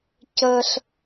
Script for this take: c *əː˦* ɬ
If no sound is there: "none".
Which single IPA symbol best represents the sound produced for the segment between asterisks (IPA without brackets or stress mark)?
əː˦